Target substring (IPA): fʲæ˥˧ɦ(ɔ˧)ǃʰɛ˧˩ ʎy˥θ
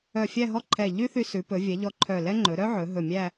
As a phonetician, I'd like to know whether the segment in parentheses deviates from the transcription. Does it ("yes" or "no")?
yes